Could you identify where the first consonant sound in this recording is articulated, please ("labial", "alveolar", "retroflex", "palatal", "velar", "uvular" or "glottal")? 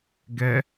velar